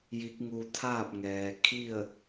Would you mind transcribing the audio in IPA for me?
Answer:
ji˧˥k̚ŋu˧ t̪ʰaː˥˨p̚ŋɛː˩kʰi˥˨ə̯

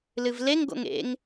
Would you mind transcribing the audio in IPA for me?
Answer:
lɨvleŋ ɡo̰ŋḛŋ

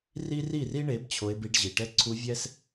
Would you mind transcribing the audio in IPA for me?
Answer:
ri˦ ri˦˨ri˦ɳe˨˦b t͡ɕʰo˧e̯bi˧ɖʑi˨ ʈɛ˧ ǀʰu˧vʲɛ˦s

